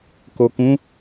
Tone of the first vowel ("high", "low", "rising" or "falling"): low